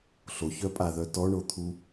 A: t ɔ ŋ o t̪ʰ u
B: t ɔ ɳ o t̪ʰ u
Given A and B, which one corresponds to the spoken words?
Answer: B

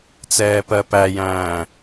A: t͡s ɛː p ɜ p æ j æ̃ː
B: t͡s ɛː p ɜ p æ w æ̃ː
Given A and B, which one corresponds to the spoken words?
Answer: A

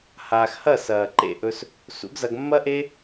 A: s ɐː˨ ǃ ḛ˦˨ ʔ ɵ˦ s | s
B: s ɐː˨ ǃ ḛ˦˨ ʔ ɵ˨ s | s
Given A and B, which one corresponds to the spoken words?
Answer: A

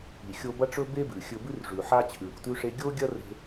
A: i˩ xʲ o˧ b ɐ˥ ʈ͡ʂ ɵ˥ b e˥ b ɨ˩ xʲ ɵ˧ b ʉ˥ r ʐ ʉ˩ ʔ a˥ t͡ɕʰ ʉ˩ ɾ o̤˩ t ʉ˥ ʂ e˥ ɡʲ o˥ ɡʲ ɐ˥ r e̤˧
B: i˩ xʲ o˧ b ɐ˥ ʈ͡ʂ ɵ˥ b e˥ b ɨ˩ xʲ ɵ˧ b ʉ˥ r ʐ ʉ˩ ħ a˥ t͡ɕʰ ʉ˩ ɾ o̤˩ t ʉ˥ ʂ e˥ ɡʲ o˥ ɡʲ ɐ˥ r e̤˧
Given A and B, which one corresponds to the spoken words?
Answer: B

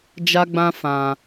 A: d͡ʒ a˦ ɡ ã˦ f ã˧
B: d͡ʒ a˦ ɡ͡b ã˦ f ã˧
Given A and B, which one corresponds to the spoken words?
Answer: B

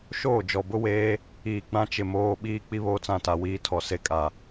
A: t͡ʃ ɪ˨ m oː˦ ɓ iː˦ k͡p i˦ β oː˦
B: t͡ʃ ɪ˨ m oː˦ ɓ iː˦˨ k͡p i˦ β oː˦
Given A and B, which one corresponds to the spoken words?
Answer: A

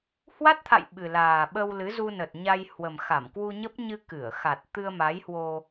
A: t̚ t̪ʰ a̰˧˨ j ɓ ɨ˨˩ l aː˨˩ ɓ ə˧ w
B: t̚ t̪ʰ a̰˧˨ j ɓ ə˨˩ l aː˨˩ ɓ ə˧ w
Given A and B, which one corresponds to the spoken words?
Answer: A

